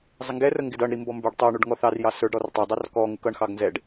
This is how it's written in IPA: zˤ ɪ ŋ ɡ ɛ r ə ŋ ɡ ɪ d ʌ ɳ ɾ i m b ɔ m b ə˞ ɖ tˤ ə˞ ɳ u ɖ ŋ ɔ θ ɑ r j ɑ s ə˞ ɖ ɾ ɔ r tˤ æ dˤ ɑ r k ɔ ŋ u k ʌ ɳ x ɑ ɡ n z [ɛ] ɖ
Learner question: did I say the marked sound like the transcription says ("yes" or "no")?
yes